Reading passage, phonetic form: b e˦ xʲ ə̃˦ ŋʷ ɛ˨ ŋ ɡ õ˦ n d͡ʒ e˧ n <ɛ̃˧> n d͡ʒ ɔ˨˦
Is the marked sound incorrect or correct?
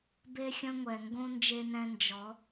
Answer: correct